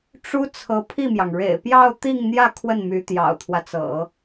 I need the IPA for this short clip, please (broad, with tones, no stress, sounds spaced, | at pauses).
ʈ͡ʂ u˥ t͡sʰ ɤ˧˥ pʰ i˥˩ m j ɑ˩ ŋ ɻ ḛ˨˩ ɪ̯ p j ɑ˥˧ ʊ̯ t̪ i˥˧ ŋ n̪ j ä˥˧ kʰ w ə˥˩ n m y˧˥ t̪ j ɑ̰˨˩ ʊ̯ t̪ʰ w ä˦ t͡s ɤ̰˨˩˦